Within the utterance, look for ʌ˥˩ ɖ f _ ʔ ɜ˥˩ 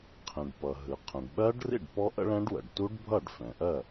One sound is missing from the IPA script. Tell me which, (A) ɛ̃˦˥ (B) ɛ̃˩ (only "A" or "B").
B